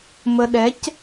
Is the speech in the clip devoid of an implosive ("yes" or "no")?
no